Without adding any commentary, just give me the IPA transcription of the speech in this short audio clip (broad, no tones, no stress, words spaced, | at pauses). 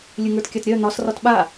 lʲɨŋə˞tkʲatɾʲœ n̪ɒs rɒtɓa